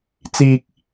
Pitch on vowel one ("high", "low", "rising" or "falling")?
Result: low